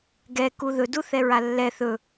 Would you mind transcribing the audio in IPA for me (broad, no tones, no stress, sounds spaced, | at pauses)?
ɡ ɛ k u ð ɵ d u θ ɛ ɹ a lː ɛ θ ɵ